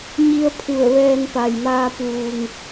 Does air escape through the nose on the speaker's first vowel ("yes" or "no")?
no